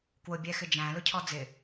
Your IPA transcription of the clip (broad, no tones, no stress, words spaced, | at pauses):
kwʊ bʲɛxɪd͡ʒæ̃ lʊcʰɔd͡zɪ